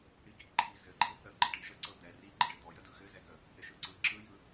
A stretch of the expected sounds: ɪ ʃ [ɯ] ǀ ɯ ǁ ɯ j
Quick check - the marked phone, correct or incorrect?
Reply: correct